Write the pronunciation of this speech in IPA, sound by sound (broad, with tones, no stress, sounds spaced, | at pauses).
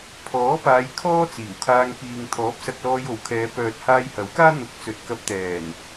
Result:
pʰ ɔː˨˥ p aː˨˧ j kʰ ɔː˥ t͡s iː˨˩ w kʰ aː˧ ŋ p iː˨ ŋ t̪ʰ ɔː˨˥ p̚ s ɐ˧ k̚ l ɔː˧ j o˨˥ w kʰ ɛː˨˧ p œː˨ t̚ h aː˧ j h ɐ˨˥ w k aː˥ n̪ ʊ˧ k̚ t͡s ɵ˨ t̚ k ɐ˧ p̚ t̪ ɛː˨˩ n